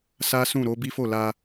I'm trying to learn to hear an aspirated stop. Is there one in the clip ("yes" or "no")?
no